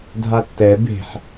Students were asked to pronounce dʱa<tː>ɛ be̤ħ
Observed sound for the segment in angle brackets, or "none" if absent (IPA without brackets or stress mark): tː